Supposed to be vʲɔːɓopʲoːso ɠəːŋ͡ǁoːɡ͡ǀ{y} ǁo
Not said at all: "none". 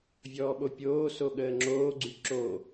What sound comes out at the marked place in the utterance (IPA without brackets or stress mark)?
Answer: y